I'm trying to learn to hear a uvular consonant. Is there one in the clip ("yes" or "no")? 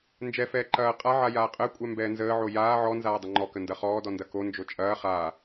yes